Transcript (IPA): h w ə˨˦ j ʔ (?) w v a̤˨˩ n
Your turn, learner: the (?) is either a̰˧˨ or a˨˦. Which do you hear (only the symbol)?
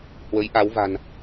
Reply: a˨˦